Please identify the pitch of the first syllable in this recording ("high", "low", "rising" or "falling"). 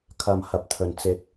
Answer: low